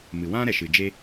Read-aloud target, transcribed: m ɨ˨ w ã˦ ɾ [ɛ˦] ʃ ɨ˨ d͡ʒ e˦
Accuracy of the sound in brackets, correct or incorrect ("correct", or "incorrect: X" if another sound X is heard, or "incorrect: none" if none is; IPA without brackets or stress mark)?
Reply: incorrect: ɛ˨